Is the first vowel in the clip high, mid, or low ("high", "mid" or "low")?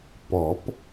mid